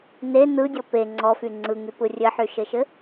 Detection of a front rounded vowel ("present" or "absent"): present